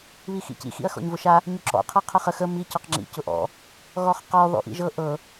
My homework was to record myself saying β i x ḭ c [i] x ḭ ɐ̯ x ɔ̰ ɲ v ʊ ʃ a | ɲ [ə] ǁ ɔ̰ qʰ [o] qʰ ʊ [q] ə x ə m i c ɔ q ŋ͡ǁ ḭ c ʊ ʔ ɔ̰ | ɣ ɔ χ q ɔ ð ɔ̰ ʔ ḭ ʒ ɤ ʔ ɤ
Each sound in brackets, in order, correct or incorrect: incorrect: ḭ, incorrect: ɵ, incorrect: ɤ, incorrect: χ

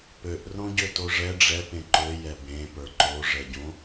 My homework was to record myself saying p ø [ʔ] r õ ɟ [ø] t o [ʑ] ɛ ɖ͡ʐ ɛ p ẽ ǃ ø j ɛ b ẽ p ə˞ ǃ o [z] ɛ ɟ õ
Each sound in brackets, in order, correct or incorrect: correct, correct, incorrect: ʐ, incorrect: ʐ

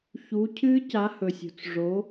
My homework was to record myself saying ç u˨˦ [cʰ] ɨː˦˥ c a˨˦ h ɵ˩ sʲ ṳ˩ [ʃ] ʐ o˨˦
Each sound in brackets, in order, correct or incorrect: correct, incorrect: t͡s

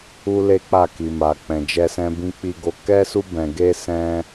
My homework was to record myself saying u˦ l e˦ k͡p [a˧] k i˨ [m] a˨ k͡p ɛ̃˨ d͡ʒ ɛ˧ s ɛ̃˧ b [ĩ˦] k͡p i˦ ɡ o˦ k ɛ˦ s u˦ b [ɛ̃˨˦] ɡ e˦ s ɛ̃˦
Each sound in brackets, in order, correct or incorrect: incorrect: a˦˨, correct, correct, incorrect: ɛ̃˧

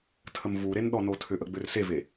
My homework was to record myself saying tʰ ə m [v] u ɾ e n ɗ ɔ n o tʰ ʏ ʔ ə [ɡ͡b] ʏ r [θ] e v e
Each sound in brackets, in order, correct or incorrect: correct, correct, incorrect: s

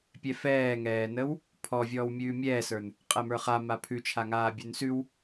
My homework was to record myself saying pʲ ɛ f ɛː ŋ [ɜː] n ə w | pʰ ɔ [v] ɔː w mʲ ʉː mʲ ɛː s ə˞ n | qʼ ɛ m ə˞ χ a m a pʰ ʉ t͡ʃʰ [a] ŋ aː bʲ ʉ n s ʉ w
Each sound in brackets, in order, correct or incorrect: incorrect: ɛː, incorrect: vʲ, correct

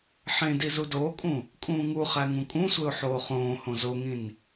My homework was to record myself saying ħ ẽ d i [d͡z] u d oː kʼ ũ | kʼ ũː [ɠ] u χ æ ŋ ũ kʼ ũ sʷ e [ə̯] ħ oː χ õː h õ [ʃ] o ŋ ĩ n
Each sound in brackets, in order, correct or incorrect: incorrect: z, incorrect: ŋ, incorrect: ʊ̯, incorrect: z

